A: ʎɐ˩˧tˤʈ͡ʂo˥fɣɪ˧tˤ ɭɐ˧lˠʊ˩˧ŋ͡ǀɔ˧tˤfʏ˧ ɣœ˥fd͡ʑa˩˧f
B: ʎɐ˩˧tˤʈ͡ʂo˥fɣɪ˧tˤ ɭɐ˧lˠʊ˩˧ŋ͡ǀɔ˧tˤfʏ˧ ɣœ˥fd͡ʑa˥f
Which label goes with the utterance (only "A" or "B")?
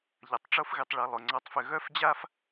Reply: B